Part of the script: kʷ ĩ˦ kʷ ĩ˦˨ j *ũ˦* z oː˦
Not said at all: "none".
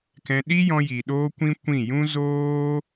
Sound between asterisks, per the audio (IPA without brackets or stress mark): ũ˦